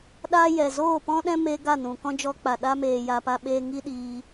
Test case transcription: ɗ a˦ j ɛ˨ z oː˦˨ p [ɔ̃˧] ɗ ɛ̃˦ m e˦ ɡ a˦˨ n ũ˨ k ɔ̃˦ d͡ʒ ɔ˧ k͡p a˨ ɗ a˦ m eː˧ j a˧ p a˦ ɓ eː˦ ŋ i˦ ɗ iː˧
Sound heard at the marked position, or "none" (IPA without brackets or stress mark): ɔ̃˦